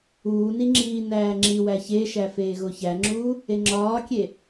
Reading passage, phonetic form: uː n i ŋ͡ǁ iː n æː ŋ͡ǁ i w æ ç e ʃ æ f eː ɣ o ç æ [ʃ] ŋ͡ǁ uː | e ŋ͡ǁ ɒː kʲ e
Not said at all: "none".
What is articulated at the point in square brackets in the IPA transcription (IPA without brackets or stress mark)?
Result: none